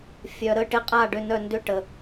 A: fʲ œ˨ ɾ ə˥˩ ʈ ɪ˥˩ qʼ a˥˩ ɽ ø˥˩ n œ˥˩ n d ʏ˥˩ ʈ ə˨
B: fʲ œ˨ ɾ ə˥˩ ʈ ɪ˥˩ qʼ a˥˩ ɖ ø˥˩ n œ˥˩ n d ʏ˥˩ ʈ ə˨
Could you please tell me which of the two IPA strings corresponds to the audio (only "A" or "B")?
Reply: B